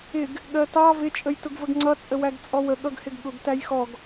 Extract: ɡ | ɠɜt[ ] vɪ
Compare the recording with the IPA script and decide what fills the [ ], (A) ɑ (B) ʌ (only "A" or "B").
A